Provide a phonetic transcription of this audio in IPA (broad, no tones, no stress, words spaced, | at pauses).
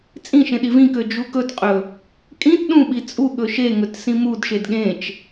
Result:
t͡sʼĩʃẽ ɗivĩkø d͡ʒukɵtqʼɵ | kʼĩt ɗũɓi t͡sʼu ɠɵʃeŋɵt sĩmudʃed ɠẽt͡ʃ